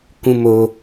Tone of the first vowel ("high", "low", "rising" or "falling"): low